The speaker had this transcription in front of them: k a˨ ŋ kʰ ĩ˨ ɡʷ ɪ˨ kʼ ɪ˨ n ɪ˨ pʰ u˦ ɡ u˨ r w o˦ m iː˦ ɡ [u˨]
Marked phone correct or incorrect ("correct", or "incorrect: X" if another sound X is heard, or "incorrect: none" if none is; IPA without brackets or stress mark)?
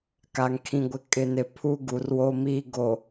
incorrect: o˨